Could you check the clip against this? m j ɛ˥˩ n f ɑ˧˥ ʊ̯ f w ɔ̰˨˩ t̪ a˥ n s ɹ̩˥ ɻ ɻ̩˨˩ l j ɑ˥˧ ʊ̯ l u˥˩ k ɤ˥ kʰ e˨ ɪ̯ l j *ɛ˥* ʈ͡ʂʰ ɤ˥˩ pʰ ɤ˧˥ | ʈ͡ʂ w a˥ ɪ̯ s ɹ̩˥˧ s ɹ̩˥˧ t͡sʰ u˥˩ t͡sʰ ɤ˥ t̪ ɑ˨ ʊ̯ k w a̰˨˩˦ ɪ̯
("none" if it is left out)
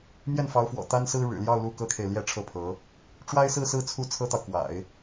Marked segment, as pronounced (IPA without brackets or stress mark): ɛ˥